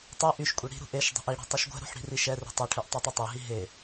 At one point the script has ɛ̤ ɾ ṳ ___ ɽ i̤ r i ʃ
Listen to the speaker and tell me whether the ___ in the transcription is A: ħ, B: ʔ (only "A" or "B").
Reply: A